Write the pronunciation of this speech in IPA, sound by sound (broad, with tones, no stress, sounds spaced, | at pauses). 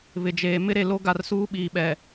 β ɪ˨ d͡ʒ eː˨ m ɪ˦ ɾ e˨ l o˦ ɡ a˨ r s uː˦ ɓ iː˨ ɓ ɛ˨